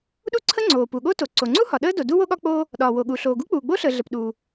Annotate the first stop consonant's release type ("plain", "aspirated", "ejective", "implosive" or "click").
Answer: implosive